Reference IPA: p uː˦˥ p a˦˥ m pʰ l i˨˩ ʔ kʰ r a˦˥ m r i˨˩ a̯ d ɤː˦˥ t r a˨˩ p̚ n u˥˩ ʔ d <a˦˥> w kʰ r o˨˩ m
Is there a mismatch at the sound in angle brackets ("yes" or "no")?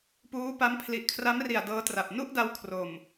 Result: yes